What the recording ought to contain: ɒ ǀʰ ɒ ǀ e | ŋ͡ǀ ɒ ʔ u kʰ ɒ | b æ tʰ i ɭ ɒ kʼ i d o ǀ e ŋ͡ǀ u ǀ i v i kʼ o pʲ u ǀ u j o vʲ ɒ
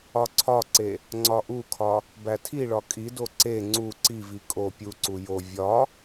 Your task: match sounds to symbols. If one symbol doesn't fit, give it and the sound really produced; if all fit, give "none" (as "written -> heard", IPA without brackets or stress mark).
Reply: none